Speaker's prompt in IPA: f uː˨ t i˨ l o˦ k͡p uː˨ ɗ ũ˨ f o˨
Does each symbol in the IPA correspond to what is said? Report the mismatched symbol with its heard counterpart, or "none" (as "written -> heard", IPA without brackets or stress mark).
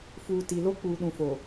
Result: none